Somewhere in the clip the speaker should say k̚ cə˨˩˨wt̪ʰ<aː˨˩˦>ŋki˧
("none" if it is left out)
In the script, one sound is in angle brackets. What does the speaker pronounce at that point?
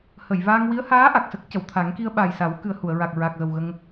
a˨˩˦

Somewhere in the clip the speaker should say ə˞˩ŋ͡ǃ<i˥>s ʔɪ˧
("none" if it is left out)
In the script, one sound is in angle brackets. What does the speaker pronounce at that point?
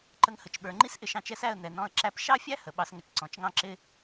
i˥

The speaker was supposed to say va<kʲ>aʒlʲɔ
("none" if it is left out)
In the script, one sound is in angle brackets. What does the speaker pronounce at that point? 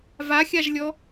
xʲ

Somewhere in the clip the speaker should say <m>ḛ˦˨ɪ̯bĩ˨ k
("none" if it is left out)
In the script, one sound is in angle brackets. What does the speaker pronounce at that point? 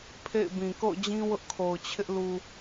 pʰ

